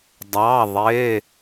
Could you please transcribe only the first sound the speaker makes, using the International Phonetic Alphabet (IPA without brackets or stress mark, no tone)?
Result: dˤ